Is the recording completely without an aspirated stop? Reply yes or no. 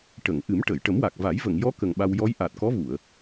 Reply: yes